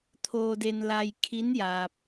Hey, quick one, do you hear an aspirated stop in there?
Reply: yes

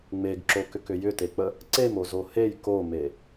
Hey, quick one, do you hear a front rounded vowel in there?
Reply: yes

